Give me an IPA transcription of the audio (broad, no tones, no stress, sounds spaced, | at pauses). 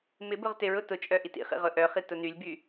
m ɪ b ʊ ʁ t ɪ ɹ ʊ t ʊ t͡ʃʼ œ ʔ i t ḭ χ ḭ ʁ ʊ ʔ œ χ i t ʊ n y lʲ b y